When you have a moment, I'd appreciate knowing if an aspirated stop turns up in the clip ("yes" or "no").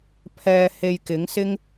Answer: yes